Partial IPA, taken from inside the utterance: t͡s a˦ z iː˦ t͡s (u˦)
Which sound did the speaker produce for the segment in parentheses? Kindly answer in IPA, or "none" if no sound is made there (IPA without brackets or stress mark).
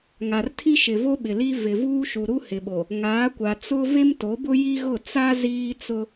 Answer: ʊ˦